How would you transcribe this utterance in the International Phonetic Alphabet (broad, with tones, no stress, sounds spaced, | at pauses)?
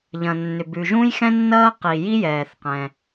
ʎ ɐ̃˩ nː ʏ˩ b ʉ˩ ʒ ũ˥ j x ɛ̃˥ nː ɐː˥ q i˩ j i˥ j ɛː˩ θ q ɛ̃˩